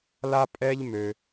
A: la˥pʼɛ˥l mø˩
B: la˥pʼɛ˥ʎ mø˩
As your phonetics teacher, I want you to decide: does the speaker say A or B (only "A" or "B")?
B